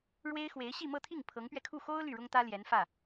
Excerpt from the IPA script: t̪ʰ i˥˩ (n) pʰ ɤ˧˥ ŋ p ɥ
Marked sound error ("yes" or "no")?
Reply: yes